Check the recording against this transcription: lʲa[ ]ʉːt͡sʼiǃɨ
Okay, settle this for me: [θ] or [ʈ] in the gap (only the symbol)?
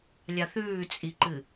θ